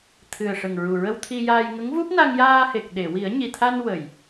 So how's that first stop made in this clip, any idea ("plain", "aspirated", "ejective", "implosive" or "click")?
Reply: aspirated